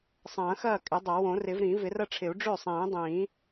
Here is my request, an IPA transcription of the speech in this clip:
sˤ ɐ̃ː˨˩˦ x ɐː˥˩ kʼ ɪ˨˩˦ dˤ ɐ˨˩˦ w õ˨˩˦ r ɪ˨˩˦ v ɾ ĩ˨˩˦ v ɪ˨˩˦ r ɐ˥˩ ʈ͡ʂʰ ɪ˨˩˦ u̯ ɖ͡ʐ ø˥˩ sˤ ĩː˨˩˦ dˤ ĩː˨˩˦

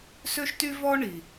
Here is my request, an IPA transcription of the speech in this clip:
s ø˥ ʃ t y˥ v ɔ˥ ɳ i˩

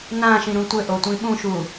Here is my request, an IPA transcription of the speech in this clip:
n ã ʃ ĩ ɾ ũ tʷ ɘ ʔ o tʷ ĩ ɓ ũ ʃ u

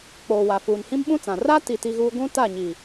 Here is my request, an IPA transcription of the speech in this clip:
k͡p oː˨ w a˨ f uː˨ n h ĩ˦ m ɓ ũ˦ t͡s ã˨ r a˦ t i˨ t i˦ ɣ uː˦ ɡʷ ũ˦ t a˦˨ ɲ i˨

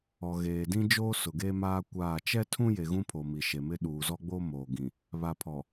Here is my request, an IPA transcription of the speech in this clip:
ɔ˨ ɣ eː˨ d ĩ˦ d͡ʒ oː˦ s ʊ˨ ɡ e˦ m aː˦ kʷ aː˦˨ t͡ʃ ɛ˦ tʰ ũ˦ j e˨ ɣ ũ˦ pʰ o˨ m i˨ ʃ e˨ m ɪ˦ ɗ uː˨ z ɔ˦ ɡ͡b o˦ m oː˨ ɡ ĩ˨ | β a˨ pʰ ɔ˨

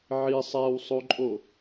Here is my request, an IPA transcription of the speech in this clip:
ʕ i sˤ æ w sˤ o ǃʼ o

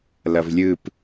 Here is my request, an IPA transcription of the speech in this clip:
l ʌ v lʲ ɯ p

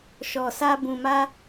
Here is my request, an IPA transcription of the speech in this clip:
ʃ ɔ˨ s a˧ b ũ˨ m a˧

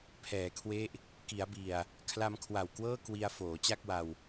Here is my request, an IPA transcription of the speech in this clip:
pʰ ɛː˩˦ kʰ w e˦˥ ʔ | k i˩˦ a̯ b i˨˩ a̯ | kʰ l a˧ m kʰ w a˨˩ w k w ɤː˥˩ k w i˧ a̯ f oː˩˦ t͡ɕ a˥˩ k̚ w a˧ w

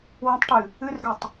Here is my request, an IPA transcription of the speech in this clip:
w ə̃ tˤ ʈ ɨ | ɨ r ɡ œ tˤ

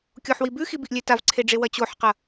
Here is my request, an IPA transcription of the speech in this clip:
kʲ o ħ w i b ʉ x i b i ʔ lʲ e t a v ǀʰ e ɖ͡ʐ e w ɐ t͡ɕ o ħ q ɐ

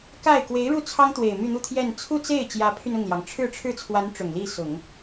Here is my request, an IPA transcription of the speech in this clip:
k a˥˩ ɪ̯ k w e˧˥ ɪ̯ ɻ u˥˩ t͡sʰ ɑ˥ ŋ t̪ w e˨˩ ɪ̯ m y˥˧ n̪ u˥˧ t̪ʰ j ɛ˥˧ n t͡sʰ u˥˧ t͡s e˥˩ ɪ̯ t͡ɕ j ä˧˥ pʰ y˧ n ʊ˥˩ ŋ l j ɑ˩ ŋ ʈ͡ʂʰ ɻ̩˥˧ ʈ͡ʂʰ ɻ̩˥˩ t͡sʰ w a˧˥ n ʈ͡ʂ ʊ˨˩ ŋ l i˥˩ s ʊ˨˩˦ ŋ

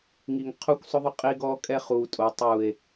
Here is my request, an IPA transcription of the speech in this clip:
ŋ i˨ ŋ qʰ u˦ kʷ sˤ ʊ˦ ðˤ ʊ˦ qʼ i˦ ɡ ɔː˦ kʼ ɛ˦ χ uː˨ tʼ o˨ tˤ uː˨ e̯

